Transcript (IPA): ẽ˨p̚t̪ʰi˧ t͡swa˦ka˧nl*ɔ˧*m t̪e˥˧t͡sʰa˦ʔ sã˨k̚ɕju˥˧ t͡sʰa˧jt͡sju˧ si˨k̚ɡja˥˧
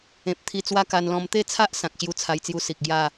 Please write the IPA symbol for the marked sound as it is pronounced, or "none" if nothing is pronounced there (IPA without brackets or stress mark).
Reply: ɔ̃˧